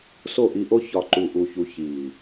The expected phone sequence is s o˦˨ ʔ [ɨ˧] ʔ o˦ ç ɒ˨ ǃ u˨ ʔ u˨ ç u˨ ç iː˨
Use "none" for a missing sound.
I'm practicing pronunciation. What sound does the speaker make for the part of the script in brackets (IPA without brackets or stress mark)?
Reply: i˧